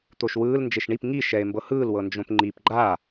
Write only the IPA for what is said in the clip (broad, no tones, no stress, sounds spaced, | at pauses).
t̪ o ʃ w ɯː l n d͡ʒ e ʃ ɳ i p ŋ i ʃ ɛ e̯ m b ɤ h ɯː l w ɤ n d͡ʒ õ p ŋ͡ǃ i p ɡ͡ǃ a